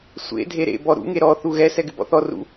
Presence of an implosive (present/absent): absent